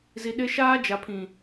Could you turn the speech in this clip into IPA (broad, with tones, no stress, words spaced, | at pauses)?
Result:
zi˨ɗɪ˦ ʃaː˦d͡ʒa˨pʰĩ˨